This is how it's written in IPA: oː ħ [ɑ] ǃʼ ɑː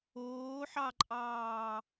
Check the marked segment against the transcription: correct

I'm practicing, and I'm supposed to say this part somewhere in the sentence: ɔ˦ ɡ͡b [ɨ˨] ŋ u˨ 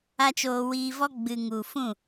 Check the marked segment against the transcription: correct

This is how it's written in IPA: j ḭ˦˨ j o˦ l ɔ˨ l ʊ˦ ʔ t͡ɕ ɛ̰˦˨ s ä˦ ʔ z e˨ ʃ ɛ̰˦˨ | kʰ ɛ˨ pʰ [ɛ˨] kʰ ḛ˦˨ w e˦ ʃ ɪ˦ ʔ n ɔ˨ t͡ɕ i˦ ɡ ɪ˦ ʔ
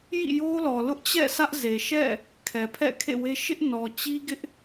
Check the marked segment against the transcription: incorrect: ɛ̰˦˨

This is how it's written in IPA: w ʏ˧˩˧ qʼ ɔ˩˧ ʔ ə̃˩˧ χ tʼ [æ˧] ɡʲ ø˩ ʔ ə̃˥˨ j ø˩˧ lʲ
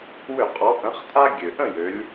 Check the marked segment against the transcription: incorrect: a˧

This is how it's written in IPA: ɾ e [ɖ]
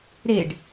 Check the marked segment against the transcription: correct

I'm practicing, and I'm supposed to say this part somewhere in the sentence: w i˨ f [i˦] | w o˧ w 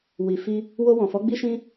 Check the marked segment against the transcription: incorrect: i˧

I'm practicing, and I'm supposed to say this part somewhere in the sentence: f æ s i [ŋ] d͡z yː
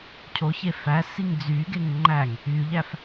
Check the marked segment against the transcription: correct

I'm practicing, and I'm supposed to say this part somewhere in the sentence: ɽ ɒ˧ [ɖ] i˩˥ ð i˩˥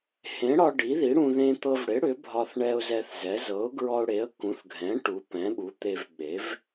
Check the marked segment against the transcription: correct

